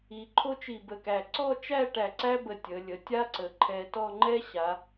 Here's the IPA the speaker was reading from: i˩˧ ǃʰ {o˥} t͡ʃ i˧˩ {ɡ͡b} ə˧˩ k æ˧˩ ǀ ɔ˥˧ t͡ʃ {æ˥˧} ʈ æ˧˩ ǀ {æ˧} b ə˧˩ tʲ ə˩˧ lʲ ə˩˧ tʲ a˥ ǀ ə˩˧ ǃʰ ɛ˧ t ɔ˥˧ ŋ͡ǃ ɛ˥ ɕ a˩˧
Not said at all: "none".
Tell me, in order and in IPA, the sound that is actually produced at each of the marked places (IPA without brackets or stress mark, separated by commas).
o˥, b, æ˥˧, æ˥